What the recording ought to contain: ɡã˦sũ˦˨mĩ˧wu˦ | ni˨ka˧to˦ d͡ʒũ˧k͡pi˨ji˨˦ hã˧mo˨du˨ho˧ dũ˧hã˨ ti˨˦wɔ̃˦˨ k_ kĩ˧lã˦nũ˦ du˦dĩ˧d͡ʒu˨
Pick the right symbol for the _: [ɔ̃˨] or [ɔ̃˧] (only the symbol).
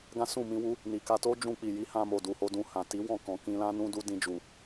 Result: ɔ̃˨